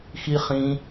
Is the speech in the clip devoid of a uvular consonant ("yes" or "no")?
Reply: no